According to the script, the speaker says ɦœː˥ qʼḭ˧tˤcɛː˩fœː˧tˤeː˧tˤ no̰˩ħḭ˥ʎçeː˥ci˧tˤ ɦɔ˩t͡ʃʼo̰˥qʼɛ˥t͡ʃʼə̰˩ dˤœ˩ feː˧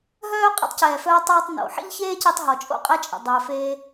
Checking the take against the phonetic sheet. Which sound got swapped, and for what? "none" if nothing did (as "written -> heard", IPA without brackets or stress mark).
none